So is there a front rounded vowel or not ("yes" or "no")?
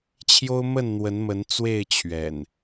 no